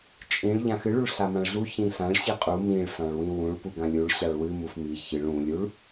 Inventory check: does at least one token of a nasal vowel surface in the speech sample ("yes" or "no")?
yes